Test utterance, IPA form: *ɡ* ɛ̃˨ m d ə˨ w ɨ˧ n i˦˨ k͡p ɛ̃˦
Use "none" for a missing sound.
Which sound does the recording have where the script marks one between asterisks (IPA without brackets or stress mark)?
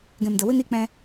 ɡ